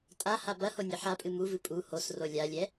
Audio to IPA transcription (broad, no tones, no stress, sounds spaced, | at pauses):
tʼ a h a b ɐ h o nʲ ɘ ħ a pʼ ɨ m u v ɨ pʼ u h o s r o lʲ a lʲ ɛ